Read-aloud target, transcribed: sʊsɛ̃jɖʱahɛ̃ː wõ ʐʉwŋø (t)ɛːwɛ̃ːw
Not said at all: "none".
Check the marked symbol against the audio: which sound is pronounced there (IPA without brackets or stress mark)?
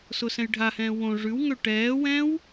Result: ʈ